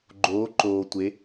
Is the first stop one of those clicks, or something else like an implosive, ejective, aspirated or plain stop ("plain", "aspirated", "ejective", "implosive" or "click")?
click